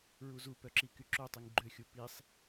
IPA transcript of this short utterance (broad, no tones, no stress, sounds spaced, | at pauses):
ɹ u z u p œ ǁ i k y ǁ o tˤ i ŋ ɡ͡ǃ ø xʲ u p i sˤ